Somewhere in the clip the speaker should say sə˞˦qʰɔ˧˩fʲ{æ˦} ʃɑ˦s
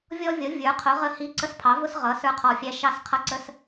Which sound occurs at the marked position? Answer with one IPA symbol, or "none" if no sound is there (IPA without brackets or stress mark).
æ˦